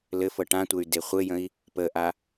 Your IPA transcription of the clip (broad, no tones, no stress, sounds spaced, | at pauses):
l ɘ f ɤ ʈ ã tʷ ɘ y̯ d e χʷ ɘ j ə̃ i̯ | p ə ʔ a